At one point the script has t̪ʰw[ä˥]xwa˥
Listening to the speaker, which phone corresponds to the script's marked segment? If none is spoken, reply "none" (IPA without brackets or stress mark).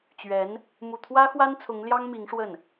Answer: ä˥